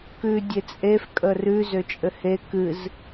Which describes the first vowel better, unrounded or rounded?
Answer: rounded